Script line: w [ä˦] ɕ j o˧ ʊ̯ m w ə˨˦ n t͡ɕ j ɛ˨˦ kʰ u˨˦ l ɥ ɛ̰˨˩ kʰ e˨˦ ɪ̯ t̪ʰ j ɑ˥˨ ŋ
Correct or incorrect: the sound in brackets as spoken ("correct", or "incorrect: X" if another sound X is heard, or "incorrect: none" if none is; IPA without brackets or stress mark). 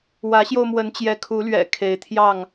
incorrect: ä˨˦